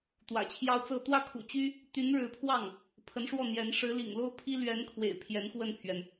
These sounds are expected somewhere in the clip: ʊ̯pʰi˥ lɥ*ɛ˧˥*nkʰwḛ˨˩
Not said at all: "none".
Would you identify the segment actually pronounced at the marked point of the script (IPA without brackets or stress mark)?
ɛ˧˥